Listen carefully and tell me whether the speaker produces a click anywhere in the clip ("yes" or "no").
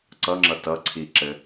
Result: yes